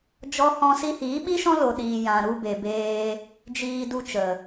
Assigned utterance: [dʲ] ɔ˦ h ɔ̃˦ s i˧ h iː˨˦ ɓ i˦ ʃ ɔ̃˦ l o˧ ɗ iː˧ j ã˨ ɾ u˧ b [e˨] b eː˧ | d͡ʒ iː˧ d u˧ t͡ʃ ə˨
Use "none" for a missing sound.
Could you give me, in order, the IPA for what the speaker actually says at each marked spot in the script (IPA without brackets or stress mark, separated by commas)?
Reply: d͡ʒ, e˨